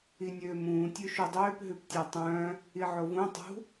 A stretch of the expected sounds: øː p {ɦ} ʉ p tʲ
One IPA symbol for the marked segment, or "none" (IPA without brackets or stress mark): ɦ